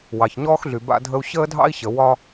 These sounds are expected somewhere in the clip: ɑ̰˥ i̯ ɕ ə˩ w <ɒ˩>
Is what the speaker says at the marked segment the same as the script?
no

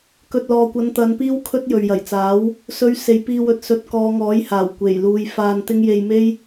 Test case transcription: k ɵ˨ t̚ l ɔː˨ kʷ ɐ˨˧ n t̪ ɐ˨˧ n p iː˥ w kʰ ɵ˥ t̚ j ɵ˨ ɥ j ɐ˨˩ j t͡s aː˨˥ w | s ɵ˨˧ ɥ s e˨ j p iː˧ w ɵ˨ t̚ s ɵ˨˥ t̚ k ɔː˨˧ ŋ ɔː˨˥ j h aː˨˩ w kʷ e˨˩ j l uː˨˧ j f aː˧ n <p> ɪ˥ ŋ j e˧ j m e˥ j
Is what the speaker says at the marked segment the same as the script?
no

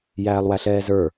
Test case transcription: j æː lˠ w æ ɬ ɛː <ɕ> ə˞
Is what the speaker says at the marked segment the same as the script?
no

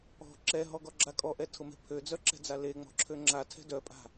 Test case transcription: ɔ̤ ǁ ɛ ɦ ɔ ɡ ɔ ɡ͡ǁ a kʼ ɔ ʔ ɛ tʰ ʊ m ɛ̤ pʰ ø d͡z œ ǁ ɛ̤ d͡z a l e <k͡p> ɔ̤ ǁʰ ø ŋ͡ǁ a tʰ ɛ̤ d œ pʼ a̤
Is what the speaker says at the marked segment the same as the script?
no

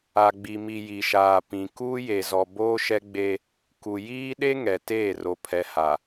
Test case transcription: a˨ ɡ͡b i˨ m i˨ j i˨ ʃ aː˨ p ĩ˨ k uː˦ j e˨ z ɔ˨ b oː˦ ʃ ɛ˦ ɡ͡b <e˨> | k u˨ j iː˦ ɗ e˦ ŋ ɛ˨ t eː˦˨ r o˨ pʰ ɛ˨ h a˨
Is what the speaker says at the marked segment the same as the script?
no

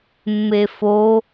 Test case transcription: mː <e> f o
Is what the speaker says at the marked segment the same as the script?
yes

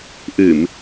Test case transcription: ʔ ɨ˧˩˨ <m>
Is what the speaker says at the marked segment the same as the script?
yes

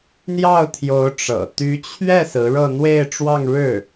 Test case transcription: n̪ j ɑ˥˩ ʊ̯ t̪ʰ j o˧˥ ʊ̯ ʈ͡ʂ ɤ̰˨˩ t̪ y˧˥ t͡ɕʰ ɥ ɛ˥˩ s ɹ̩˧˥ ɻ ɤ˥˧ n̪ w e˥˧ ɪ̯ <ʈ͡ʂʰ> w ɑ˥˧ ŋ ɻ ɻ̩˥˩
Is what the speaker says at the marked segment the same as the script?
no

